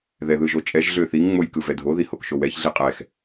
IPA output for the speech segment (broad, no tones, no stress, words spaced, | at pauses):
ðɛðɯʒot͡ʃʼɛʒ ɮøθiŋ ŋ͡mojkɯvɛdʱo ðihokʃowɛç ɮiqʼɛx